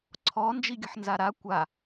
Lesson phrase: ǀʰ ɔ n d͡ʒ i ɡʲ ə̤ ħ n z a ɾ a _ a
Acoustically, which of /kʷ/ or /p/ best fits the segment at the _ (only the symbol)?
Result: kʷ